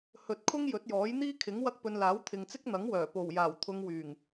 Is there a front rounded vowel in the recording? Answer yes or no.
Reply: yes